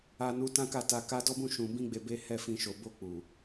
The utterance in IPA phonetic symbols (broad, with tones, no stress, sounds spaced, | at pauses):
a˦ n u˦ t ã˦ k a˦˨ t a˧ k a˦ d ɔ˦ b ũ˦ ʃ ũ˧ b ĩ˦ ɡ͡b e˧ b e˦ h ɛ˦˨ f ĩ˧ ʃ o˨ b o˧ k͡p u˨